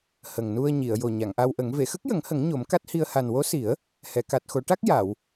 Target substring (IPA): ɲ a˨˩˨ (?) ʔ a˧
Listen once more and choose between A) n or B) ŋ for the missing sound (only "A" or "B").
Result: B